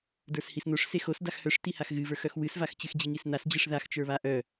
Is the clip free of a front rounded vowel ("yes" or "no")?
no